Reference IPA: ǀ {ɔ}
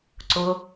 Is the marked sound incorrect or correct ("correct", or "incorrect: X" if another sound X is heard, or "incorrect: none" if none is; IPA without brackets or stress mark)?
incorrect: ʊ